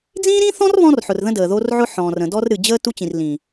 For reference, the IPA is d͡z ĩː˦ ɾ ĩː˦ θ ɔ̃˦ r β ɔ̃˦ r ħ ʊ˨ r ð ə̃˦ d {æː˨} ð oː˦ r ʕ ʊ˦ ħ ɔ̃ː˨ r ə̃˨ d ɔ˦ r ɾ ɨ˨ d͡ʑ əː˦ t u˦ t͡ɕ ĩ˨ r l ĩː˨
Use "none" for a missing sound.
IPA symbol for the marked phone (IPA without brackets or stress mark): əː˨